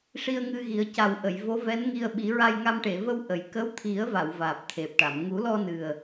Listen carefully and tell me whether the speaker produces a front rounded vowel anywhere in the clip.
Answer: no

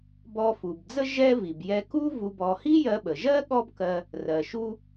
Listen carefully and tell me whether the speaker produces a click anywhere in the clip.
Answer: no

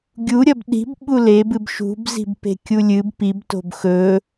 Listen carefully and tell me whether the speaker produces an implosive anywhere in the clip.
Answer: yes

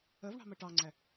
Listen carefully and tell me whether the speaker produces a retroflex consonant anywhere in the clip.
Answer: yes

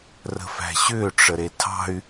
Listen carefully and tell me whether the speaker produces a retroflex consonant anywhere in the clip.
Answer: yes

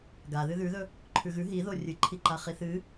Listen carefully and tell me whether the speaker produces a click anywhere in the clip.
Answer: yes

